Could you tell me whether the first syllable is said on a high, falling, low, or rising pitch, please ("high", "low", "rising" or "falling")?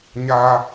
high